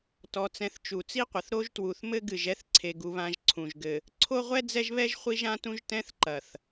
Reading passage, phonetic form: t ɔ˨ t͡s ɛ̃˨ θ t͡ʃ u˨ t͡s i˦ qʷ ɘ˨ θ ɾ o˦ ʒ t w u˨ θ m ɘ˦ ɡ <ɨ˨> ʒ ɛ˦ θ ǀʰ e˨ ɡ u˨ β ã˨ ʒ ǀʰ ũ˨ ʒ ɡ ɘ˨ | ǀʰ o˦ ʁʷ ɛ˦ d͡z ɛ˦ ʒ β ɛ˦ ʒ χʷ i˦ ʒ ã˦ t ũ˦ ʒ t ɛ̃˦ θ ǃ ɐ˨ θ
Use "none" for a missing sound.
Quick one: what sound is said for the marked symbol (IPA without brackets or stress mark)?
ɨ˨